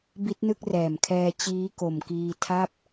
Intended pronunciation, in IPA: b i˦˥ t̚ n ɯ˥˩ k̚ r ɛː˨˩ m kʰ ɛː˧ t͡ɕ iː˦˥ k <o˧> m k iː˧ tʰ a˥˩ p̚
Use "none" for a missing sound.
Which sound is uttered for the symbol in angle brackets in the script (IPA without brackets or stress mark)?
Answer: o˨˩